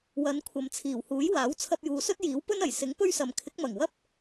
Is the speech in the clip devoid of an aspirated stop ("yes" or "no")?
no